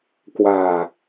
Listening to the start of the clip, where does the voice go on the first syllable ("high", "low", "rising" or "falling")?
low